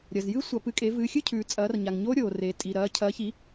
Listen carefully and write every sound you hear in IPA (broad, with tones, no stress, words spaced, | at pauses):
ɾʲɐ˨zjɨ˦˥ sʷɐ˨˦pɨ˨˦kʼe˨˦ vɨː˨˦xʲɨ˦˥cʰʉː˨ t͡sʼɐː˨˦rɲa˨ŋɲo˦˥ ɾʲoː˨ reː˨tʼi˨ɾɐː˨˦ cʰɐː˨˦çi˨˦